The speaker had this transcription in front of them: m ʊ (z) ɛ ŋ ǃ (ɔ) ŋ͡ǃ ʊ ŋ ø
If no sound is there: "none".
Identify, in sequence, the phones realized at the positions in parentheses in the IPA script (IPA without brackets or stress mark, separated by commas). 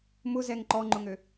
z, ɔ